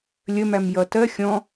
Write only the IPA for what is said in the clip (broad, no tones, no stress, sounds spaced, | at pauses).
lʲ ə m æ m j ʌ t ɜ xʲ ɔ̃